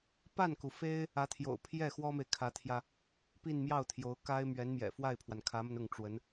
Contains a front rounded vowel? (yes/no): no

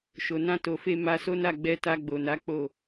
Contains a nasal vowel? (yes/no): yes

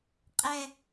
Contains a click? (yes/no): no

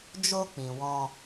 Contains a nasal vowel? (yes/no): yes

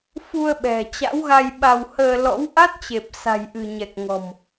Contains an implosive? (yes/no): yes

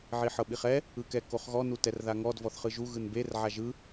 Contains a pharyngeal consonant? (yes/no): yes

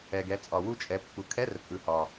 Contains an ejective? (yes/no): yes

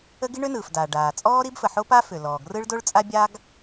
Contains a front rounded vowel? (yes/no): yes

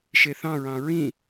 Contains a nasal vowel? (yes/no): yes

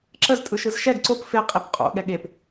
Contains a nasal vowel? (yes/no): no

